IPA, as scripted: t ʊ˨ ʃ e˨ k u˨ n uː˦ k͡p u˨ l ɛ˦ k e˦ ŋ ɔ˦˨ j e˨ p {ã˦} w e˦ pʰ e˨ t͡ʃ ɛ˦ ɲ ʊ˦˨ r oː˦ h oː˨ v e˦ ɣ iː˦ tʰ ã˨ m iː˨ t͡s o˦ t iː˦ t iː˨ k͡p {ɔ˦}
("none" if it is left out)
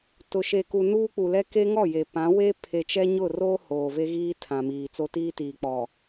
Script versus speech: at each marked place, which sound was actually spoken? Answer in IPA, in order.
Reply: ã˨˦, ɔ˨

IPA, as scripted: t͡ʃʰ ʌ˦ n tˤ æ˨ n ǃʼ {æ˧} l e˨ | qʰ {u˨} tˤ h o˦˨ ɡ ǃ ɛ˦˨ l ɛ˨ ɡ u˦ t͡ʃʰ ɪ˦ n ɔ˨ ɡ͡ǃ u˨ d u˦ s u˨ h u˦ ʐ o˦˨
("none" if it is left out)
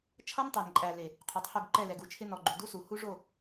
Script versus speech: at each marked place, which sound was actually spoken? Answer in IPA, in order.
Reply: æ˨, u˨

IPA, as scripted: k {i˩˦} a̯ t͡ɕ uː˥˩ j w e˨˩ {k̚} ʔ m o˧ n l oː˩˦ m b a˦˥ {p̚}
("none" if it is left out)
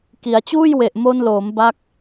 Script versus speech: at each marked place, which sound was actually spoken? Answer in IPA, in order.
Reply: i˩˦, none, k̚

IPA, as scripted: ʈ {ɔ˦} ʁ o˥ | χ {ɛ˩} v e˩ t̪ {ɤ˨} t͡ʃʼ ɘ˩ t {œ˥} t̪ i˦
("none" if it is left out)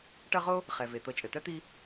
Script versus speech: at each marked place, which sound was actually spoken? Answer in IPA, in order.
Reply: ʌ˦, ɛ˩, ɤ˨, œ˥

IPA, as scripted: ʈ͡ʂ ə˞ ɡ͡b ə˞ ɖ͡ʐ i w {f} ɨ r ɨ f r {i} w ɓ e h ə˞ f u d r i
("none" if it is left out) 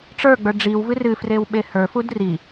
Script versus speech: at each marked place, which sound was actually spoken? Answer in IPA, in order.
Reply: v, e

